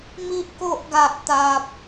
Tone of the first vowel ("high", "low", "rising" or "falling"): high